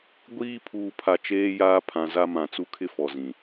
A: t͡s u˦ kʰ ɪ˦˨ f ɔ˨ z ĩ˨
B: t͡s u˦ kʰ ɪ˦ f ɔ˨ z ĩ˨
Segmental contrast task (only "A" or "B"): B